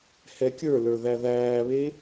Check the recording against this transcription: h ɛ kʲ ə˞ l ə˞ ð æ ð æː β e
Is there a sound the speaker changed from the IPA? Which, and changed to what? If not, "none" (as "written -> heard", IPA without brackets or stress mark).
none